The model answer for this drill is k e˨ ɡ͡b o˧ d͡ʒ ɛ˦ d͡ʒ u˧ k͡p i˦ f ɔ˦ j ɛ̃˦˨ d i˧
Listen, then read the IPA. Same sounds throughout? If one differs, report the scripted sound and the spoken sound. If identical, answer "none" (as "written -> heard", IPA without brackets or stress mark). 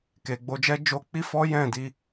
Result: u˧ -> o˧